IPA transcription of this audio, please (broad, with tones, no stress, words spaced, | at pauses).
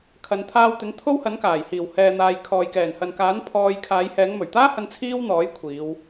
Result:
kʰɐ˨˧n t̪ʰaː˧wt̪ɪ˨˥ŋ t̪ʰo˥whɐ˨˥nkaː˨˩j hiː˨˩whɛː˨n̪aː˨j kʰɔː˨jkɛː˨˩nhɐ˨nkaː˨˥n pʰɔː˧j kʰaː˨˧j hɛː˨˧ŋmɵ˨˩ɥt̪aː˥hɐ˧n t͡sʰiː˥wn̪ɔː˨˥j kʷʰiː˨˧w